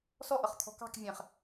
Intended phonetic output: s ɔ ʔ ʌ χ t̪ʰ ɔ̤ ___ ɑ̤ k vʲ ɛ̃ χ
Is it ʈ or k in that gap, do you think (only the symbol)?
k